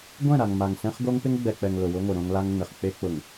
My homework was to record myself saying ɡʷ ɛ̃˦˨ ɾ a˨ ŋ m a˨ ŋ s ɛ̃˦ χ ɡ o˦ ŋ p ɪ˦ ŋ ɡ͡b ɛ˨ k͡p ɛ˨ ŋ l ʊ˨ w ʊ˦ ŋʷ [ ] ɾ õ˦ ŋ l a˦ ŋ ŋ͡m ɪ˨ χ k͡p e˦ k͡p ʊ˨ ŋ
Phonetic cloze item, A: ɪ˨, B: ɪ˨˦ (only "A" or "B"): A